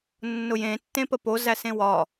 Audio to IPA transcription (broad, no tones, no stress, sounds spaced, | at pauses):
nː ʊ j ẽ tː ẽ p ə p o z æ s ẽ w ɒ